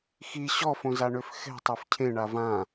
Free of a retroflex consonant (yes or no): no